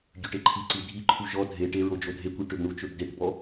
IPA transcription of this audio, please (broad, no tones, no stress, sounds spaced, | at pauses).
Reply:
ɟ ø ʈ e ǃʰ i ǀ i dʱ i ǃʰ u ʒ ɔ dʱ e ʈ e ɹ o d͡ʒ o dʱ e kʷ i ʈ ø b ɳ u t͡ʃ ø b d e ʈ b ɔ